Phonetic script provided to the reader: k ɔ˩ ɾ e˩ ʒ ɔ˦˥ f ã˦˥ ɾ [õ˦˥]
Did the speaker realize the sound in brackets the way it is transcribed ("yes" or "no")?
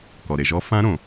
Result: no